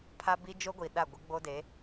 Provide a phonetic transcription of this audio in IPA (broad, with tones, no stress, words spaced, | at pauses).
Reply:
pʰa˦bi˦ d͡ʒo˦ɡʷi˨ɗa˦˨ ɡʷɪ˦ɡ͡bo˦de˨˦